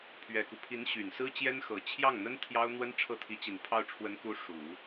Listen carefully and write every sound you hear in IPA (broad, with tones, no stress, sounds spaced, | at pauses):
pʰ ɥ ɛ˨˩ k u˦ pʰ i˧˥ n ɕ y˨˩ n s ɹ̩˥ t͡ɕ j ɛ˥ n x ɤ˨˩ t͡ɕʰ j ɑ˥˩ ŋ n̪ ə˥ n t̪ʰ j ɑ˥ ʊ̯ n̪ w ə˥ n ʈ͡ʂʰ ɤ˥˩ t̪ʰ i˧˥ t͡ɕ i˨˩ n pʰ ɑ˥˩ ʊ̯ ʈ͡ʂʰ w ə˧˥ n k u˧˥ ʂ u˨˩˦